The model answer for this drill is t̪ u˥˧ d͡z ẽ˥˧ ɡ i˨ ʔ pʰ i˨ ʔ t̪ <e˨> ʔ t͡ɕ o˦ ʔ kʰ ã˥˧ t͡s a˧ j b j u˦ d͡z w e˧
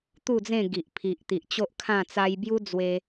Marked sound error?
yes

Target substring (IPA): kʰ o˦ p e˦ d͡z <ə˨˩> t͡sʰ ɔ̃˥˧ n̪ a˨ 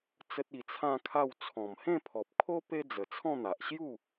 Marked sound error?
no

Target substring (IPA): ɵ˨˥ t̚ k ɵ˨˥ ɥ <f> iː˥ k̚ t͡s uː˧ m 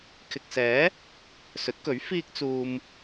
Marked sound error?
no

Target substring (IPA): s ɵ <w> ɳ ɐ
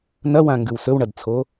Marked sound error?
no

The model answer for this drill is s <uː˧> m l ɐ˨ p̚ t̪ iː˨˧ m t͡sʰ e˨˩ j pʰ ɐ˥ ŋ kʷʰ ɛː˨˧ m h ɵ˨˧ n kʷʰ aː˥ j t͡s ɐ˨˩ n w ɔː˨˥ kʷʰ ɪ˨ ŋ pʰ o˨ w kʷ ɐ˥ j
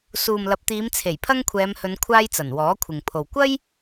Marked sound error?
yes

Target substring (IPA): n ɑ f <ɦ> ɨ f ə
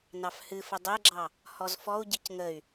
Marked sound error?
yes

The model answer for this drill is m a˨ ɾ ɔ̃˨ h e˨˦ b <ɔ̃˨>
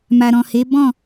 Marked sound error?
yes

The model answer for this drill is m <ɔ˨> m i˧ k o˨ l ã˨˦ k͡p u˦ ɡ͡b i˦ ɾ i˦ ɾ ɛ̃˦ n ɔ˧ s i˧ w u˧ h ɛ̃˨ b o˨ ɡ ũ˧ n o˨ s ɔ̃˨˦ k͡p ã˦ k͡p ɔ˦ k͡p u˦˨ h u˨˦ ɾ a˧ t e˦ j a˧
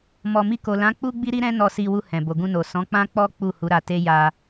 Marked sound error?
no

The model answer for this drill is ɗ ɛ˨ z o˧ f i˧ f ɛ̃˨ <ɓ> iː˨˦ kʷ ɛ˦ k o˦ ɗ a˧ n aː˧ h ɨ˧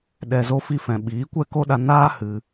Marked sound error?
no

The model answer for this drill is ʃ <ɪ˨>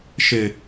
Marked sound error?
no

